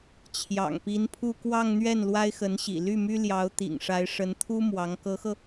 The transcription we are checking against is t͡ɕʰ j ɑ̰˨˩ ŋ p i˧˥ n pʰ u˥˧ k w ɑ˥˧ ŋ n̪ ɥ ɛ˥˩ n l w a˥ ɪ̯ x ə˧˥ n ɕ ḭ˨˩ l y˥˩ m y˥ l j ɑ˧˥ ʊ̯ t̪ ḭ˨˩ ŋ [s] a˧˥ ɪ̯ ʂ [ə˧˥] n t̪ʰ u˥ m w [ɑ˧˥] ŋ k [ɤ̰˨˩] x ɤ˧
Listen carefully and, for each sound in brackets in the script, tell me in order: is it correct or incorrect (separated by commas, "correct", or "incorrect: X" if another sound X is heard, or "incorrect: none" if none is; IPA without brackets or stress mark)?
incorrect: ʂ, correct, correct, incorrect: ɤ˧˥